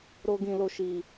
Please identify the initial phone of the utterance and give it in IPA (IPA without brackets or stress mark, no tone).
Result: ɾ